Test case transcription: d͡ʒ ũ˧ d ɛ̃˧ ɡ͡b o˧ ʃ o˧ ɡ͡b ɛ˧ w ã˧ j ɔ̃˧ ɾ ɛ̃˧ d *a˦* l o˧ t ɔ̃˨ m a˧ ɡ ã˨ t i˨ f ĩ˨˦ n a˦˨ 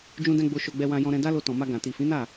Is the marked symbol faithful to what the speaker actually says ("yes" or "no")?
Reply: yes